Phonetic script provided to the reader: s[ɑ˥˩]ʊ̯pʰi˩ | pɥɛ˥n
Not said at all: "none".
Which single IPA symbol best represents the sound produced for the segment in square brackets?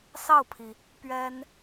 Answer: ɑ˥˩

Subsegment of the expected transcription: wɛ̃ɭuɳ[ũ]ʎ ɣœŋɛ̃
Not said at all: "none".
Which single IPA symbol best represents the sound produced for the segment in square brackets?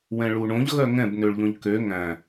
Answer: õ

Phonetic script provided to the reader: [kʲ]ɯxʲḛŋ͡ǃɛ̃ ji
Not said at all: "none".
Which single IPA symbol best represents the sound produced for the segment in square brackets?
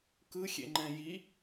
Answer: k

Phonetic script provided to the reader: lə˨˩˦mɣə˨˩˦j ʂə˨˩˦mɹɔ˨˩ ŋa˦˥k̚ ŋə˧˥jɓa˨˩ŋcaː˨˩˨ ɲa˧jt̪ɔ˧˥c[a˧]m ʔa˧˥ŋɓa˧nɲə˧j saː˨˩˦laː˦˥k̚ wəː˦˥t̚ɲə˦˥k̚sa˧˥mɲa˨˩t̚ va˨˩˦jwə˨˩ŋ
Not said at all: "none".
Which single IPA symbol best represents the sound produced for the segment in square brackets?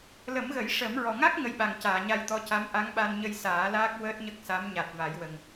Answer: a˧˥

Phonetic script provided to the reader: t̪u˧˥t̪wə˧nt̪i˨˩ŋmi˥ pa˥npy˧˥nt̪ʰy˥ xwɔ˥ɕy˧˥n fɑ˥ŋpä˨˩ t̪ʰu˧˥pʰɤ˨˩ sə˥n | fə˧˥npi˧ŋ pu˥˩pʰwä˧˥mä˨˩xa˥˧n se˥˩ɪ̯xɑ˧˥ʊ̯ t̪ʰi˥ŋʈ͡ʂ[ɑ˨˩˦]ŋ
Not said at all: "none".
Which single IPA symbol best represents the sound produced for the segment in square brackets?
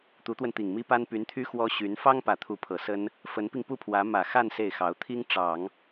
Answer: ɑ˨˩˦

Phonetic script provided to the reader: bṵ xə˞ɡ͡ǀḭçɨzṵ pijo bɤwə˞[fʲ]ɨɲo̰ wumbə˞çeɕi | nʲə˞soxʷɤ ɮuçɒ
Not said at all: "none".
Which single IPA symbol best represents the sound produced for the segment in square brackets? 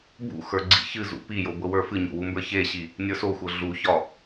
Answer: f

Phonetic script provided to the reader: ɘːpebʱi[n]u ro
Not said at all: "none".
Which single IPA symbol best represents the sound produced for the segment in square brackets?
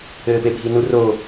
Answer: n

